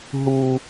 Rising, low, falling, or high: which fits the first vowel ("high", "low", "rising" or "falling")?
low